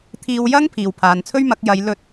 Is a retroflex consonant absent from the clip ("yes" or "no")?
yes